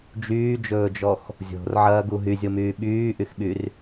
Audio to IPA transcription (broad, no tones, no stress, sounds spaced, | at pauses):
d͡ʒ yː d͡ʒ ɵː d͡ʒ ɔ x | zʲ o̤ r ʕ ɐː ɡ u ɦ y zʲ o m yː ɓ yː ʔ y x ɓ y r